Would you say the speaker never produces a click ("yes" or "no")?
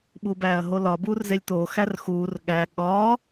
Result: yes